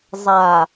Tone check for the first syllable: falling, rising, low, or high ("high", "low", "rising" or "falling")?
low